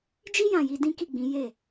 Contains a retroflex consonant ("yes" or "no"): no